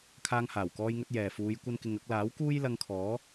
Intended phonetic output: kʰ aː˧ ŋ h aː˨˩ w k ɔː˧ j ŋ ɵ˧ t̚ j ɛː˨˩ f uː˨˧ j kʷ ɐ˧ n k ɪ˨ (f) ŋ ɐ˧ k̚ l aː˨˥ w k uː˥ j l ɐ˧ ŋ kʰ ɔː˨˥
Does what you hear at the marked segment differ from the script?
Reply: yes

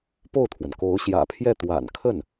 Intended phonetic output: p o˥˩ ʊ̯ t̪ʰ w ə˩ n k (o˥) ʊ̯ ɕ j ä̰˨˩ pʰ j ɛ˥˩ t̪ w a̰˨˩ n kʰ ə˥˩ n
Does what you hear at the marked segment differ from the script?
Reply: yes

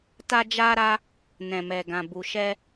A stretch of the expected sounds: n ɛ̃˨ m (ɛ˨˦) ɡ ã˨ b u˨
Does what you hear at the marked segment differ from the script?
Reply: yes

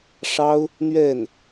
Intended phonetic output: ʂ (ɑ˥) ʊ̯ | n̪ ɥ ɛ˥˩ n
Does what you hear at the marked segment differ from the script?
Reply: no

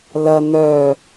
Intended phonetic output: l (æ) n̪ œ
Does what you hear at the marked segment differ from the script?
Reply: yes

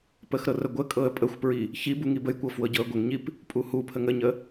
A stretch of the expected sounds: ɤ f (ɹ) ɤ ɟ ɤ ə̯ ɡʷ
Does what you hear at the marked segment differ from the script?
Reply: yes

